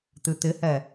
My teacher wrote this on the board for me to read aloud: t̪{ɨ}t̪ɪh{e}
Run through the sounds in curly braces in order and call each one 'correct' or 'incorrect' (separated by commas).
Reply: correct, incorrect